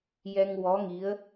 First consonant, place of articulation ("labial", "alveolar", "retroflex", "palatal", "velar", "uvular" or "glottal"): palatal